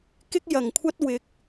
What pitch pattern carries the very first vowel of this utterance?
high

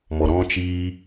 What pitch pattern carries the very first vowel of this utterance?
low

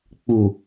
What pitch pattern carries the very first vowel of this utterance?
low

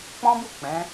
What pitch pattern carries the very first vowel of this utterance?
high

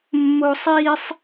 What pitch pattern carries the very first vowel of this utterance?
high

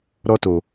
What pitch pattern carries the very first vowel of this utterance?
high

